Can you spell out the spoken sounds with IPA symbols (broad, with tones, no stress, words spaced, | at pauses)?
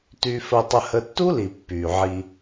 ty˧fə˧tˤə˧ hə˦ tːu˦li˨ pːy˨ʕi˧